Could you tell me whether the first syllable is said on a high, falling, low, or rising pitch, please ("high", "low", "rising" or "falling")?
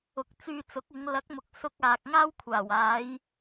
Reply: rising